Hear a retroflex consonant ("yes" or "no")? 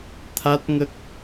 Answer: no